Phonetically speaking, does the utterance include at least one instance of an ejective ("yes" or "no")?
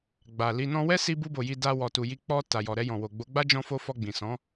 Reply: no